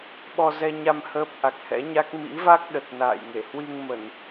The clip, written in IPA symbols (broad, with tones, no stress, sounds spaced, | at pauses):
ɓ ɔ˧ z ɛ˧ ɲ a˧ m h əː˦˥ p̚ ʔ a˨˩ k̚ h ɛ̰˧˥ ɲ a˦˥ k̚ m ḭ˧˥ v a˦˥ k̚ ɗ ə˨˩ t̚ n a̰ː˧˨ j ŋ e˧˩ h w i˧ ŋ m ə˧˩˨ n